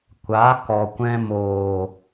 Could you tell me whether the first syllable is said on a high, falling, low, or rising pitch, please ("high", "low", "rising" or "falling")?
rising